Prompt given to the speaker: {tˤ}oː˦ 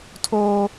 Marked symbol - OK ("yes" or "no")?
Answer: no